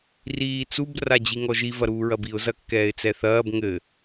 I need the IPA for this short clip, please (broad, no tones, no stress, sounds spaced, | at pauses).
r iː t͡s u b r a d͡ʑ i ŋ ɔ ʒ i v ɐ ɾ uː ɹ ɐ b i ʊ̯ z ɐ kː ɛː ɪ̯ t͡s ɛ θ ɐː b ŋ ɘ